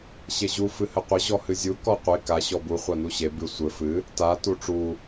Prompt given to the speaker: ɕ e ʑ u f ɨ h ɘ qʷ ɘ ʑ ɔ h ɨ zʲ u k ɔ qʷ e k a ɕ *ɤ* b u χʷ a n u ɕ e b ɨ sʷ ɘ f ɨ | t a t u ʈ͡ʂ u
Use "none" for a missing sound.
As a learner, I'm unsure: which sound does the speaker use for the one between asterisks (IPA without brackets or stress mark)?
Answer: ɔ